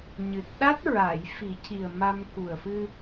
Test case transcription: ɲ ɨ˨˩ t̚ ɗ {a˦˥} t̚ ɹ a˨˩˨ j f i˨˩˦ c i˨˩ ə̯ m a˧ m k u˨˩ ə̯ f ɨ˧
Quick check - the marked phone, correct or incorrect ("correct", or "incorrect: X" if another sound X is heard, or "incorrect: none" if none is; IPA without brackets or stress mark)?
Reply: correct